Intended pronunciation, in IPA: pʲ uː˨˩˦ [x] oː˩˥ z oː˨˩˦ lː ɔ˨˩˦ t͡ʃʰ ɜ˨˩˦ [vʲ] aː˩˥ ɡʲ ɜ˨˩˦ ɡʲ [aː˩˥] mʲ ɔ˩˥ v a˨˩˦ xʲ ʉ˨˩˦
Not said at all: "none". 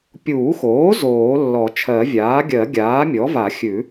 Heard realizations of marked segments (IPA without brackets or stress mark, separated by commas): x, vʲ, aː˩˥